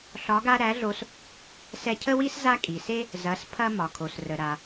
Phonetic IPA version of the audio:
ɬ ɒ˧˥ ɡ a˥ ɾ æ˧˥ ɮ o˧ s | s ɛ˧ cʰ ə˥ w i˥ s z a˥ kʼ i˩ s e˥ | z ɐ˩˧ s pʰ ɐ˧ m ɒ˩ kʰ o˩ s r ə˩ ɾ a˩

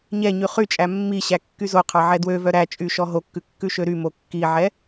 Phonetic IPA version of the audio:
ɲ ɛ ɲ y χ y t͡ʃʼ æ mː i ɕ æ kː y z o qʰ ɑ ʕ ɛ d w ø v œ ɾ æ t͡ʃʼ y ʃ ɔ ɦ o kː ʉ kː ʉ ʃ ø ɾ y m o kː i ʕ ɛ

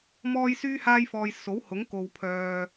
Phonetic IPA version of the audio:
m ɔː˥ j s yː˥ h aː˥ j f ɔː˧ j s o˨˥ w h ʊ˨˥ ŋ k o˨ w pʰ œː˨

